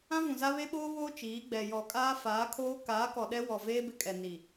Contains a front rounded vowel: no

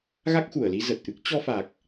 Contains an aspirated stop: no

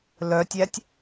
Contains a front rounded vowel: yes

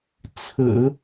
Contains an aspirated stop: yes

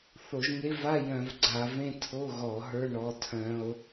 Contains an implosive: no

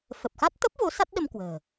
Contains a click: no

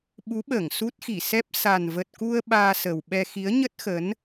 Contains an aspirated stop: no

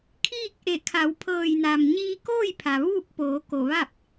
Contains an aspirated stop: yes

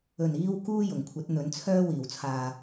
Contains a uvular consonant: no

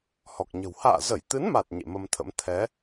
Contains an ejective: no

